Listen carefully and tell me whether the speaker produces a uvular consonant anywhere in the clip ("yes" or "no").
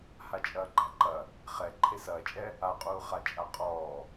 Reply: yes